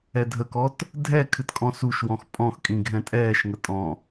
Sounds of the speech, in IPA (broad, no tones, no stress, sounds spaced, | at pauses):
ɛ dʱ ə k ɔ t | dʱ ɛ kʰ ɨ t kʼ ɔ̃ s u ʃ w ɔ̃ x pʼ ɔ̃ x kʼ ĩ ɡʱ ɛ̃ tʼ ɛː ʃ ŋ ə tʼ ɔ̃